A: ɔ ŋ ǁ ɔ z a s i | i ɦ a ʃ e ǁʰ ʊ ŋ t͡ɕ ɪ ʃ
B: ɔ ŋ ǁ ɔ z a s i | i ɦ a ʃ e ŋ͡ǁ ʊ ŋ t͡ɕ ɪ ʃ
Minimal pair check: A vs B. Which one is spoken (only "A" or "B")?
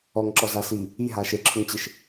A